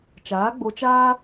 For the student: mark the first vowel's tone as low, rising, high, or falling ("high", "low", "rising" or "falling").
rising